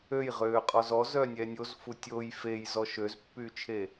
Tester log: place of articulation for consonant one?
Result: palatal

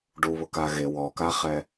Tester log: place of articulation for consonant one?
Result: retroflex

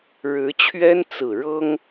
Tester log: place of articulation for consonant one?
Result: retroflex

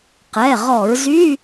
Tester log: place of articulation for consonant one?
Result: uvular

